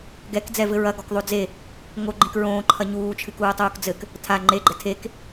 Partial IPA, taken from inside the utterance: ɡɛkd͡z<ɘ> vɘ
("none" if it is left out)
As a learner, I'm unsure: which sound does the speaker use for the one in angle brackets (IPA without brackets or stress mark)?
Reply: ɛ